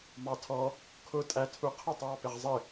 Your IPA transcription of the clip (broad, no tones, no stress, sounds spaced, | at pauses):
m ɑ tʰ ɔ | kʰ ʊ tʼ æ tʰ u qʰ ə tˤ w ɑ p ɪ ʁ zˤ ɪ